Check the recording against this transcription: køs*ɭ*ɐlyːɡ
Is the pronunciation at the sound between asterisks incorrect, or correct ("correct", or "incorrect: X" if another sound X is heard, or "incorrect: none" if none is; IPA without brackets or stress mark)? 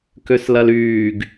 incorrect: l